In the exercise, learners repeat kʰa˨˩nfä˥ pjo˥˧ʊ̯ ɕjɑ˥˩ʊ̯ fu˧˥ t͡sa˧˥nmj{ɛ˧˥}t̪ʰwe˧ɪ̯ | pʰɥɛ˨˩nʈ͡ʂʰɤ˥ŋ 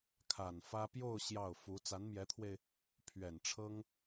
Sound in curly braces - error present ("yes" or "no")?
no